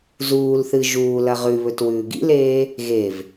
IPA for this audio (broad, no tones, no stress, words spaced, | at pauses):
zuːlθɨ ʒuː lɐʁʉβɵt wʉːɡḭleː | ɣev